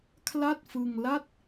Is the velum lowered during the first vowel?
no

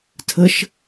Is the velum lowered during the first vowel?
no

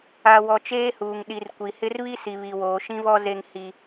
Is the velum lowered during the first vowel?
no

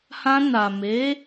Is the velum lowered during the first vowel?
yes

